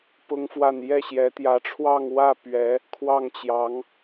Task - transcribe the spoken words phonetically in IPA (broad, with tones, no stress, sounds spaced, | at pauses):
p ʊ˥ ŋ f w a˥˧ n j ɛ˥˩ ɕ j ɛ˧˥ t̪ j ä˧˥ ʈ͡ʂʰ w ɑ˥˧ ŋ w ä˥˩ p ɥ ɛ˧˥ | kʰ w ɑ˥˩ ŋ t͡ɕ j ɑ˧˥ ŋ